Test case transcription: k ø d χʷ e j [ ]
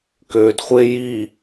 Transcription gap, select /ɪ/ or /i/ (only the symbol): i